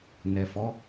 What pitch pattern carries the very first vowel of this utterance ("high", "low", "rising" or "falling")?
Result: low